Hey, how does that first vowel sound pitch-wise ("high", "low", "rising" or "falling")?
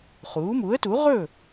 rising